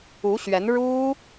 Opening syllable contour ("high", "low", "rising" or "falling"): rising